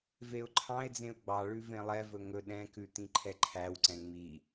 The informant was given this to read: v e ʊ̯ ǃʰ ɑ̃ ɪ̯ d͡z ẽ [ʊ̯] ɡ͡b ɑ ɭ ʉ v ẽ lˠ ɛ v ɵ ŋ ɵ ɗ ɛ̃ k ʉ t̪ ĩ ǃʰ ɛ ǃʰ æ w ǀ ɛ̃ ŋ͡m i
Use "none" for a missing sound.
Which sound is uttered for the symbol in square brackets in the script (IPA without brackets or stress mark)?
ʊ̯